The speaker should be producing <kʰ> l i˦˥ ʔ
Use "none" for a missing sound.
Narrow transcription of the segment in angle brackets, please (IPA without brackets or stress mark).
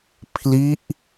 pʰ